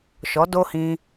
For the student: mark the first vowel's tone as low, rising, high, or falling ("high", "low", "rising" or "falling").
rising